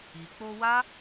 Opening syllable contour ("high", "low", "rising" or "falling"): low